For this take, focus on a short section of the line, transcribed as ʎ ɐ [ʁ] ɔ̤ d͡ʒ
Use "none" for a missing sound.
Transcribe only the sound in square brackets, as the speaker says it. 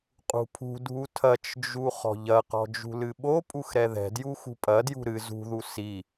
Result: q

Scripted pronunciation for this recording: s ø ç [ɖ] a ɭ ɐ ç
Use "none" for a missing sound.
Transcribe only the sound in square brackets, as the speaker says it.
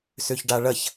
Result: ɖ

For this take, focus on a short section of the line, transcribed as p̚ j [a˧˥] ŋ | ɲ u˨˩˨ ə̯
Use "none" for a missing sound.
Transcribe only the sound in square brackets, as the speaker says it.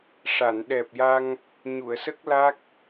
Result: a˧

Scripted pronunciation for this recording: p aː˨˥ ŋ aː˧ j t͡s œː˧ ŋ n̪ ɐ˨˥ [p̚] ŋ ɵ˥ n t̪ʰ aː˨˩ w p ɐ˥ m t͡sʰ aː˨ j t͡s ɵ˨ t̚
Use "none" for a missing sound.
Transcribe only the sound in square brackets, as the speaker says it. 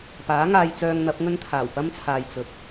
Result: p̚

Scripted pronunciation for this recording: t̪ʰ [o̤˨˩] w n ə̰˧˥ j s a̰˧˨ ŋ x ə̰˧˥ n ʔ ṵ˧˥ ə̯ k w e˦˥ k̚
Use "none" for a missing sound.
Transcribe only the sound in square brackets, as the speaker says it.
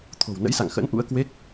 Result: o̤˨˩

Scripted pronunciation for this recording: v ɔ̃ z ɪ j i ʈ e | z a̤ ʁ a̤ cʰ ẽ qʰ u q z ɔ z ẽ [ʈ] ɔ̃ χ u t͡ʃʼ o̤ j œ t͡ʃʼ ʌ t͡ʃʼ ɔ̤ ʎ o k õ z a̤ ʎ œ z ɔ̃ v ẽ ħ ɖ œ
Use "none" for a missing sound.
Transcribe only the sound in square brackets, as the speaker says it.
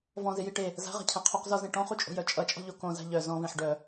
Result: ʈ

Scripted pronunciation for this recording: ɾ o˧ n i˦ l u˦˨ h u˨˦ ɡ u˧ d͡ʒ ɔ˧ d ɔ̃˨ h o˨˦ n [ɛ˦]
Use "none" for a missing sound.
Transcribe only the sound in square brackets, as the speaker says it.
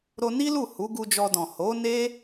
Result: e˦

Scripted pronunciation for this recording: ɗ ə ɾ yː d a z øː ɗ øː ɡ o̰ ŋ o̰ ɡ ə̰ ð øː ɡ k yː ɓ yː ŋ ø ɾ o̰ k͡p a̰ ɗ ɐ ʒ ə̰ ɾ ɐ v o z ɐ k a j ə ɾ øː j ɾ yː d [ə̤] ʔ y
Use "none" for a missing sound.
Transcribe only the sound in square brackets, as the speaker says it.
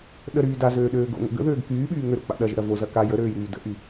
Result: ə̰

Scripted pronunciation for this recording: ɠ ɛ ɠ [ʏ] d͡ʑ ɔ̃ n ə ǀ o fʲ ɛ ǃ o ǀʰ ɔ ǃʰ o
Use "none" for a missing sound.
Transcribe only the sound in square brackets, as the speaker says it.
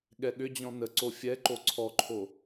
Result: ʏ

